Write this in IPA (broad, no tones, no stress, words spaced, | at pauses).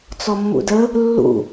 t͡sɔmːṵdə | lːṵ